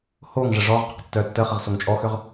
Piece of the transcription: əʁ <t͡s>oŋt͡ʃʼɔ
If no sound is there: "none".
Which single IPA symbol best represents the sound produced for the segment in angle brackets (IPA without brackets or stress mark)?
s